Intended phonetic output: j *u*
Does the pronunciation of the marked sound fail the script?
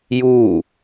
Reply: yes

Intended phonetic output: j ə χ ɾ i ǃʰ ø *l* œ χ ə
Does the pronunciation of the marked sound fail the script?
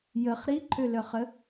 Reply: no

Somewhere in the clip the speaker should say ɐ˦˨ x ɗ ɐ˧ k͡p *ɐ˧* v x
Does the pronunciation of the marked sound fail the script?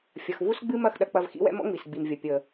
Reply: no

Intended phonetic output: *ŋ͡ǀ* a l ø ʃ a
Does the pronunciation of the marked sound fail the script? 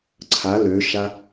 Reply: yes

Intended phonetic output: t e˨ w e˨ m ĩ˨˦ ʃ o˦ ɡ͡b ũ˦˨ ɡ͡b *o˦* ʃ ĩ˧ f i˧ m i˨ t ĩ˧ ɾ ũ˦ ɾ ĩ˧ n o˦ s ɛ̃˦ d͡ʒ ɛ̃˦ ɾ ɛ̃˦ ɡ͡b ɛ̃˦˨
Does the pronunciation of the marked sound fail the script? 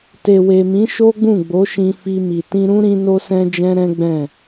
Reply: yes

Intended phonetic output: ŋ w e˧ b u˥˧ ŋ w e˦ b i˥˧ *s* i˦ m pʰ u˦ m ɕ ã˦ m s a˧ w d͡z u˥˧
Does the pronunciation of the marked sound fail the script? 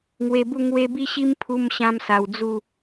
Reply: yes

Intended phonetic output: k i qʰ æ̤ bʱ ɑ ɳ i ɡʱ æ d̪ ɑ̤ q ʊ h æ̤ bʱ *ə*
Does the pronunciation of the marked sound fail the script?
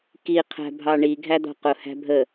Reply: no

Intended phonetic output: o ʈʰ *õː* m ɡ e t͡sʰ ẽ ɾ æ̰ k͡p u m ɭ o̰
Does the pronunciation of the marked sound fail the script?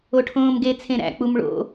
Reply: no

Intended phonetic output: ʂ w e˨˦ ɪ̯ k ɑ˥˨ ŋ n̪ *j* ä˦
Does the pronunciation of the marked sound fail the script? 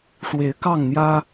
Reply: no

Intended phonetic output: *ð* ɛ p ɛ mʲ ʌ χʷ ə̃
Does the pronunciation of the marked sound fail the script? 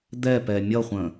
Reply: yes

